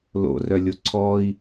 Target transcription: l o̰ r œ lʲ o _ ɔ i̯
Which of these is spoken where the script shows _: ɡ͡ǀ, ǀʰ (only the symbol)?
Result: ǀʰ